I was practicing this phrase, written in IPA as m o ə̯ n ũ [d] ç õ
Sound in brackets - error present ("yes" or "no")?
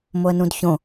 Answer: no